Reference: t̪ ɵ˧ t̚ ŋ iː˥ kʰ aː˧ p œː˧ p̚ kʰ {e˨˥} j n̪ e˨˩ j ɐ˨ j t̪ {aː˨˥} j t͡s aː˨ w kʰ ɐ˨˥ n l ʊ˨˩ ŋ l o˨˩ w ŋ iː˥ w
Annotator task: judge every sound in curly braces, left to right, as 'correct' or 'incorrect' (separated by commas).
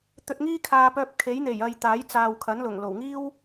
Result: correct, correct